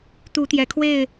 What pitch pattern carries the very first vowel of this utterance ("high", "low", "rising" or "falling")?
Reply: rising